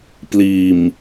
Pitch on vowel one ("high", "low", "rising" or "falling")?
low